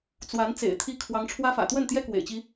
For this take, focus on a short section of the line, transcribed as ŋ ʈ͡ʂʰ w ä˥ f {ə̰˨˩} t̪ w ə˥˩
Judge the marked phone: incorrect: ä̰˨˩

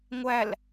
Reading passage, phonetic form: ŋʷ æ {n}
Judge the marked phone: incorrect: l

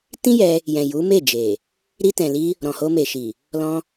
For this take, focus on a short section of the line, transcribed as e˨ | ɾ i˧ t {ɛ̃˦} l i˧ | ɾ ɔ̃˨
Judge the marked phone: incorrect: ɛ̃˨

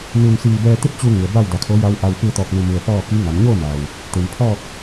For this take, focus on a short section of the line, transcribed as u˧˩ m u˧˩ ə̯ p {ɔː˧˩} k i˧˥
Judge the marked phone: incorrect: ɔː˥˨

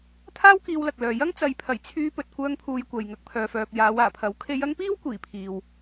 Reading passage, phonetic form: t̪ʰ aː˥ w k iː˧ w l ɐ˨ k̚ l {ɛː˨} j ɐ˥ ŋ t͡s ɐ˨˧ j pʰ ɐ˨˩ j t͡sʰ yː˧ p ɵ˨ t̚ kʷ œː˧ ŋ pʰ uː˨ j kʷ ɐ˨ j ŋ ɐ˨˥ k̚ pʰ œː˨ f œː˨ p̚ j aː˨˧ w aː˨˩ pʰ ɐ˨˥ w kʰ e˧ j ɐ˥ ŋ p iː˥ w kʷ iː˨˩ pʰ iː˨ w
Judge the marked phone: incorrect: œː˨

